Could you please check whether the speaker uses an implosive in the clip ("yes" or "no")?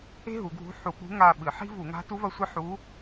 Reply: yes